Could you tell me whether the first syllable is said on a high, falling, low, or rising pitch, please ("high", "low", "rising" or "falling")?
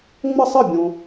falling